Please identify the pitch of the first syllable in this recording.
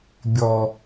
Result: low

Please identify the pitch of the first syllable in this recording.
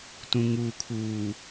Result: low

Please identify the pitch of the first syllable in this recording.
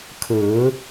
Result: rising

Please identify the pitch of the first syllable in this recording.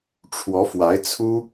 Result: rising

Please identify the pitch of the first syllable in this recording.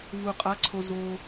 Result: low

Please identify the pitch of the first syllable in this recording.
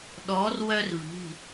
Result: rising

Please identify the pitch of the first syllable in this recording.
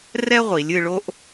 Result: high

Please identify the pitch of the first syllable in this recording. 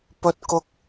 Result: high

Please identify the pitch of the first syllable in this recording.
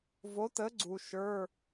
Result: rising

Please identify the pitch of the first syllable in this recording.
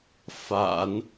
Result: low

